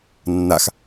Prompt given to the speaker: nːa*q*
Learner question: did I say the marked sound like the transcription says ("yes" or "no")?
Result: no